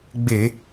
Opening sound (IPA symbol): ɡ͡b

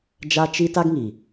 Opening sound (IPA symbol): d͡ʒ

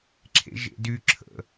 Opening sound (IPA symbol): ǁʰ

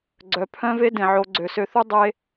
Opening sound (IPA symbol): ɡ͡ǀ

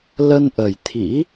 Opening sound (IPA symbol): l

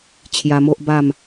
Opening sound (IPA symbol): t͡ɕʰ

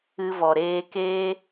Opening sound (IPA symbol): ɨ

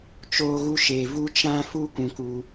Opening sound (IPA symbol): t͡ʃ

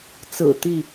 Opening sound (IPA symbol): t͡s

